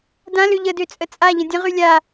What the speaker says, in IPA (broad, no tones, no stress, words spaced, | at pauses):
dãlø ʎədøt͡sʼə t͡sʼaʎə̃ dʲə̃ʁy lʲa